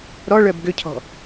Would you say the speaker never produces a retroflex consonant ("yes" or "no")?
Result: no